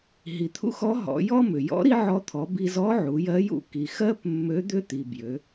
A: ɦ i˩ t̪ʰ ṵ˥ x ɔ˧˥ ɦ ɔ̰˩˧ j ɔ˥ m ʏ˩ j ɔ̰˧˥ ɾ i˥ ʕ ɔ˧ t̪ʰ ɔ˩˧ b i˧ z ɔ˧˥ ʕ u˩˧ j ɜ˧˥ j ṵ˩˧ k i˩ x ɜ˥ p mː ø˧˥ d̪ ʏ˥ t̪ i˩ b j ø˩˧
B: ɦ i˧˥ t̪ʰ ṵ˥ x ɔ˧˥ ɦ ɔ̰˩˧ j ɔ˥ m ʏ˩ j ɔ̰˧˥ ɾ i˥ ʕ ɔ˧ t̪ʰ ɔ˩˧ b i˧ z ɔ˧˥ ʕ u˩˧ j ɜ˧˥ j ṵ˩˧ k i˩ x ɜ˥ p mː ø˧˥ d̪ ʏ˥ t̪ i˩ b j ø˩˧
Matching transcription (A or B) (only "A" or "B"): A